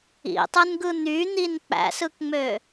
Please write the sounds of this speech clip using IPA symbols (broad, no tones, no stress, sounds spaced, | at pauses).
ḭ tˤ ɯ n ɡ ɯ n̪ y n̪ i n k͡p æ̰ s ɯ k ŋ͡m ø